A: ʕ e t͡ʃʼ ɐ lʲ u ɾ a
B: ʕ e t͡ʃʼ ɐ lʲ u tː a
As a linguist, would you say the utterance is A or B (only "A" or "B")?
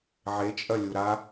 A